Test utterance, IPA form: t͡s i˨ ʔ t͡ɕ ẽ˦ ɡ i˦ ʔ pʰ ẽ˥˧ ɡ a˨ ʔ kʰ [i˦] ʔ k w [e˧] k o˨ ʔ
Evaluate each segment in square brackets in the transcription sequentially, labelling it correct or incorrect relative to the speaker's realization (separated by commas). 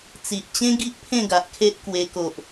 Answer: incorrect, correct